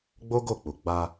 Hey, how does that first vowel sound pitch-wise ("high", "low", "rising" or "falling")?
high